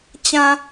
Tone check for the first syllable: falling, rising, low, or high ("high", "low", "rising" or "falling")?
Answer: low